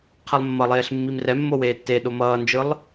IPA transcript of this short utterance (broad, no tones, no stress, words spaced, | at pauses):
qʰelˠmːʌlˠeːɬ mːimrɛmːo weːtːeɗo mʌːnd͡ʒɯlˠ